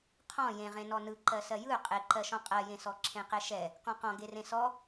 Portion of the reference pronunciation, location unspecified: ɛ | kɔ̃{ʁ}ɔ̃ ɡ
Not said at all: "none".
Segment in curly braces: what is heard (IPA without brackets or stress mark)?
q